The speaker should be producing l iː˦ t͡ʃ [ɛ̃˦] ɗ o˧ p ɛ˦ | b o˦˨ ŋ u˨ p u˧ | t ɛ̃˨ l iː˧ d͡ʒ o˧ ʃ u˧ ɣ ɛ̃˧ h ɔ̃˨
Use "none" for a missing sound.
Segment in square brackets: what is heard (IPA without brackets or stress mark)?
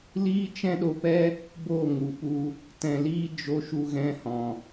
ɛ̃˦